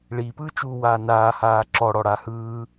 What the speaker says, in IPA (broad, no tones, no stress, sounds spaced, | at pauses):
ɭ i p ɯː t͡ʃ uː w aː n aː h aː ǁ ɔ ɽ ɔ ɽ a h ɯː